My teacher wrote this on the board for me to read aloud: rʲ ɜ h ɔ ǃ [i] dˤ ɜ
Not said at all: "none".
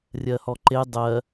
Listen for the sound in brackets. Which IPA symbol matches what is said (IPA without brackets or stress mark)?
e